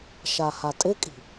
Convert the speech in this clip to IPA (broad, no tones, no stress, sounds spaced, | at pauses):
ʃ a h a tʼ ɪ kʼ i̤